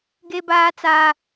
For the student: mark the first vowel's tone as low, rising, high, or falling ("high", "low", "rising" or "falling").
high